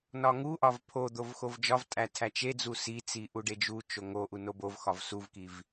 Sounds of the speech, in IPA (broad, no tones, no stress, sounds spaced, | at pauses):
n ɒ ŋ u ʔ ɒ v pʰ o d̪ o v x o v d͡ʒ ɒ v tʼ æ tʰ æ t͡ʃ e d͡z u s i t͡s i ʔ u ɖ e d͡ʒ u t͡ʃ o ŋ o ʔ u n o b o v x ɒ v s u v k i v